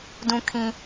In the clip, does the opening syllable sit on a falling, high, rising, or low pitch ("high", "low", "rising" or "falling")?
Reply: high